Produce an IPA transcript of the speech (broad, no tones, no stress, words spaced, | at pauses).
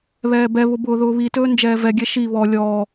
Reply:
βɛːbɛβʊ bʊːðʊːβitɵː nd͡ʒɛːvɛɡʲɛ ʃi βɔ lʲɔː